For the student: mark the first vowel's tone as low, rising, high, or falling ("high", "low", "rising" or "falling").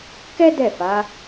high